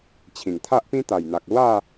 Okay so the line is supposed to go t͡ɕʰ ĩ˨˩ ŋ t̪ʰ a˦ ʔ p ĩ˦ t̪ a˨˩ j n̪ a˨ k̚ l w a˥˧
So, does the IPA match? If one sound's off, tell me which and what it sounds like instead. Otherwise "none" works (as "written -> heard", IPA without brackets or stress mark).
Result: none